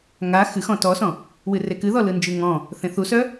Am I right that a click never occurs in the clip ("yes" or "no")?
yes